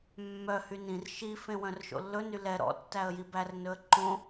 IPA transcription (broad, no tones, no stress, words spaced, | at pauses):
mːœ hynĩr ʃi fẽwœ̃rʃo̰lːɵ nylɛ ɾɔ̰ tːæə̯jibær nɵə̯ǃõ